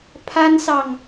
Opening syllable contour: high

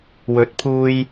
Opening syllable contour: rising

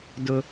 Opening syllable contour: high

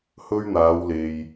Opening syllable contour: high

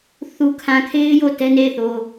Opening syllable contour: low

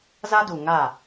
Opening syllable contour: high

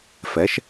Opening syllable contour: rising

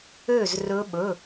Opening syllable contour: falling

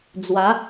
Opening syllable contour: rising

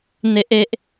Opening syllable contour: high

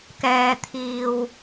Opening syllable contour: low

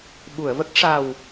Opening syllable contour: low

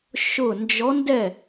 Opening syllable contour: falling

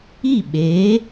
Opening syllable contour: falling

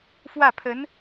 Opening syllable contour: falling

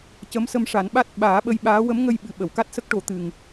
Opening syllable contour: rising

